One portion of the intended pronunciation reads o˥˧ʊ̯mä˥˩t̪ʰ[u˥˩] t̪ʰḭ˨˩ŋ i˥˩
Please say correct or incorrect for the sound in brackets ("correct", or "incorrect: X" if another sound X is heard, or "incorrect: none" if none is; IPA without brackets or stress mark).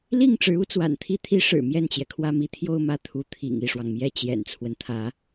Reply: incorrect: u˧˥